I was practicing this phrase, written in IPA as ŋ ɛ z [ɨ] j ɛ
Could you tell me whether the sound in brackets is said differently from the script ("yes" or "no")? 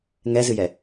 no